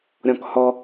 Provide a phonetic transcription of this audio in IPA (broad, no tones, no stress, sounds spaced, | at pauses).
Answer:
ɾʲ ɔ̃ k h ɔ